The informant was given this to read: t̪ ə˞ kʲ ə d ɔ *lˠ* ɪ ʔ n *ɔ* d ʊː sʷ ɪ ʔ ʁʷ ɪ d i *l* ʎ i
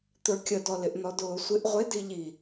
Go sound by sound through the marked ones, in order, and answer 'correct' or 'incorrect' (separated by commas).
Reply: incorrect, correct, incorrect